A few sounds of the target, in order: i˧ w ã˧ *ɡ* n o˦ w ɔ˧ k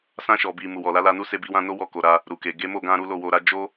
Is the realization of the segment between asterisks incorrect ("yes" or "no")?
yes